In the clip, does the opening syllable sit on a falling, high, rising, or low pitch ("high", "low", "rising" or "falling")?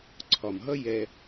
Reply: low